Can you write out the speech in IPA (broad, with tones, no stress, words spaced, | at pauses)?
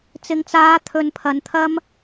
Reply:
t͡sɪ˨ŋt͡saː˨˧ t̪ʰɵ˧n pʰɐ˨nt̪ʰɐ˥m